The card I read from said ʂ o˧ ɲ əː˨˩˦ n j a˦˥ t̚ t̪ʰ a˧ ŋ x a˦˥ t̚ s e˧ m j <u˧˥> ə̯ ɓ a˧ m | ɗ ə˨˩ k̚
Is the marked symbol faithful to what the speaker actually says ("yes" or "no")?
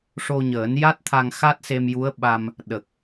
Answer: yes